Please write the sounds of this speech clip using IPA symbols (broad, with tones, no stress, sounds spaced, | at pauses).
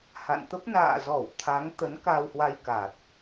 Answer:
h a̰˧˨ n t̪ ə˦˥ p̚ n a̰ː˧˨ z ɔ˧˩ w t̪ʰ a˨˦ ŋ t̪ ə˨˦ n k a˧ w h w a˧ j k a˨˩ t̚